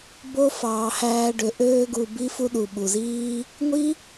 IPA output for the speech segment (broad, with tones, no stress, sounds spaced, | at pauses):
b o˦ f ɑː˧ h æː˦ ɖ ø˧ ʔ øː˧ ɡ u˨ b i˦ f u˦ ɗ u˨ ɓ u˨ z iː˦ | ŋʷ i˦